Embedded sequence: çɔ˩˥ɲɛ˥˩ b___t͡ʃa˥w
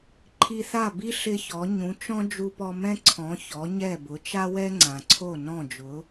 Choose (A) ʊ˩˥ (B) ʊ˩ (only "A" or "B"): A